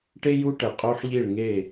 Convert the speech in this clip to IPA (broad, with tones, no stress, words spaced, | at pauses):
ʈe˦j u˦ʈɛ˨qʼo˦ħʎi˦˨ɭ ŋe˦˨